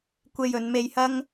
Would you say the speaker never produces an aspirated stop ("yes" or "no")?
yes